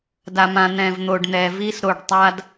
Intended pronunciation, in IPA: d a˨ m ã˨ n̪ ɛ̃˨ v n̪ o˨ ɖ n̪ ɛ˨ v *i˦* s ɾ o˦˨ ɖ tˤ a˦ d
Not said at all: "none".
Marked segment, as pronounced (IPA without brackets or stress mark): i˦